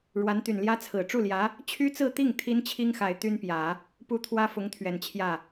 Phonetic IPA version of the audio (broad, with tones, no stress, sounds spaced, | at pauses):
ɻ w a˧˥ n t̪ y˨˩ n l j ä˥ t͡sʰ ɹ̩˨˩ ʈ͡ʂ u˥˩ l j ä˧˥ | t͡ɕʰ y˥ t͡s ɹ̩˥˧ t̪ i˥˩ ŋ t̪ʰ i˥ n t͡ɕʰ i˥ ŋ x a˨˩ ɪ̯ t̪ y˥ n p j ä˨˩˦ | p u˥ t̪ʰ w ä˥ f ʊ˧˥ ŋ t̪ʰ ɥ ɛ˨˩ n t͡ɕʰ j ä˥˩